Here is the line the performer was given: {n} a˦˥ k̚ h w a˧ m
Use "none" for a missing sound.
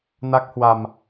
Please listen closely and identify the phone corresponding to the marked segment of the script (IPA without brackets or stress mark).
n